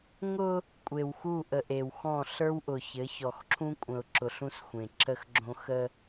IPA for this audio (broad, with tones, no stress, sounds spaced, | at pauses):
ŋ ʊ˦ | kʷʼ e˨ w x u˦˨ ʔ ə˨ ʔ e˨ w x ɔ̃˦˨ ɬ ə˞˦ w ʔ ʊ˨ ç ɘ˨˦ ç ɔ˨ x ǁʰ ũ˦ kʷʼ ə̃˨ ʊ̯ ǁ ʊ˨ ɬ ũ˦ s xʷ ẽ˨ ǁ ə˦ x ɡ͡ǁ õ˦ x ə˦